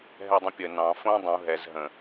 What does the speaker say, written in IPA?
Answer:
ɦ ɛ dˤ ə̃ pʲ ə n ɑ̃ f õ dˤ ũ ɦ ɛ z ɦ ə̃

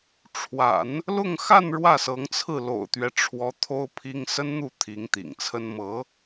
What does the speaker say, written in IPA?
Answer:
ʈ͡ʂʰ w a̰˨˩˦ n | l ʊ˥˧ ŋ x a˥˧ n ɻ w ä˥˩ s ɤ˧˥ ŋ t͡sʰ ɹ̩˥˩ l o̰˨˩ ʊ̯ t̪ ɥ ɛ˦ ʈ͡ʂʰ w ɔ˧˥ t̪ʰ o˥ ʊ̯ pʰ i˥ ŋ s ə˥ n n̪ u˥˩ t̪ʰ i˧˥ ŋ t̪ ḭ˨˩ ŋ t͡sʰ ə˥ n m ɤ˧˥

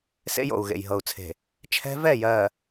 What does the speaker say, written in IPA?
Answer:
s ḛ˦ j o̰˨ u̯ ɣ ḛ˨ j ɦ ɤ˨ u̯ t͡sʰ e̤˨ | t͡ʃʰ ɛ̤˦ v ɛ˦˨ j ɜ˨

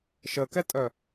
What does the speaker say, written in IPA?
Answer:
ʃ ə k ɛ tʼ œ

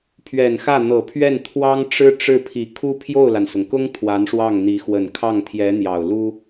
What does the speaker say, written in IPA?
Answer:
pʰ ɥ ɛ˨˩ n x ä˥˩ n̪ ɤ˨˩ pʰ ɥ ɛ˥˩ n t̪ʰ w ɑ˥ ŋ ʈ͡ʂ ɻ̩˥ ʈ͡ʂ ɻ̩˥˩ pʰ i˨˩ kʰ u˥ pʰ j o˥˩ ʊ̯ l a˩ n s ʊ˩ ŋ k ʊ˥ ŋ t̪ʰ w a˧˥ n ʂ w ɑ˥˩ ŋ n̪ i˧˥ x w ə˨˩ n kʰ ɑ˥˩ ŋ t̪ʰ j ɛ˧˥ n̪ j ɑ˨˩ ʊ̯ l u˥

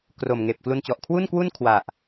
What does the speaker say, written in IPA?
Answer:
k r o˨˩ m ŋ eː˨˩ p̚ k l u˧ n t͡ɕ ɔ˨˩ ʔ kʰ w u˥˩ n k w u˥˩ n kʰ w a˨˩ ʔ

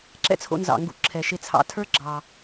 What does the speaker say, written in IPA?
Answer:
ǁ ɛ̰˥ t͡sʰ o̰˧ n z ɑ̰˩ ŋ ɡ ṵ˧ ǁʰ ɛ˩ ʃ e˧ t͡sʰ ɑ̰˧ tʰ ə˞˥ ɡ͡ǁ ɑ˩

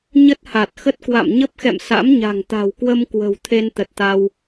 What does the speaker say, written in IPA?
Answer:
ɲ ə˦˥ t̚ h a˨˩ t̚ x ə˦˥ t̚ k w a̰˧˨ m ɲ ə˦˥ p̚ x ɛ̰˧˨ m s a̰˧˥ m ɲ a̤˨˩ ŋ t̪ a̤˨˩ w k w ə˧ m k w ə̤˨˩ w t̪ʰ e˧ n t̪ ə˨˩ t̚ t̪ a˧ w

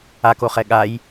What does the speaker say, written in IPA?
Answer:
a k o χ ɛ ɠ a j

